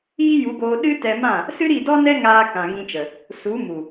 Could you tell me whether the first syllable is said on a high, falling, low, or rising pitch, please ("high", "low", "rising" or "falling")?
high